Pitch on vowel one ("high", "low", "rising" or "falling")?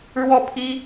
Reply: falling